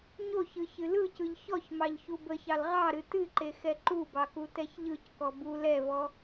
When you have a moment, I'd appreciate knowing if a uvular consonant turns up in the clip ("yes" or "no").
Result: yes